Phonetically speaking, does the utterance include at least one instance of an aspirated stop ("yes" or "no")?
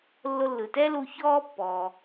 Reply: no